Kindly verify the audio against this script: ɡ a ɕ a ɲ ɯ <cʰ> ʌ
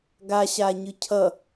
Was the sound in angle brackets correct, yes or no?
yes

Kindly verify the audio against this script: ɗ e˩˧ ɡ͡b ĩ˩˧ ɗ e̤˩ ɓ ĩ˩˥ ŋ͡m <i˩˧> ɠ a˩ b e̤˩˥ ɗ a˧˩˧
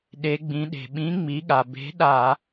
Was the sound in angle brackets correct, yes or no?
yes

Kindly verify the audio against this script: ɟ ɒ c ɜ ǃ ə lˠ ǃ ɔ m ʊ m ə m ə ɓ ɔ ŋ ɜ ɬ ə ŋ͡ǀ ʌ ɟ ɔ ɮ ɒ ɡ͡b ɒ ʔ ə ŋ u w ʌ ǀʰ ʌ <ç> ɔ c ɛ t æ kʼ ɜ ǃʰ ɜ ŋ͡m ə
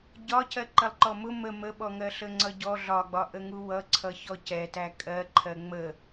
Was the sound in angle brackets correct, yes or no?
yes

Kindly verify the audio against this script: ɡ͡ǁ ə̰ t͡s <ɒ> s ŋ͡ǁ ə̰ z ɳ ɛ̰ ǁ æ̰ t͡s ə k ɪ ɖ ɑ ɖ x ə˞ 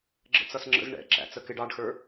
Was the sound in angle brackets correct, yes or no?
no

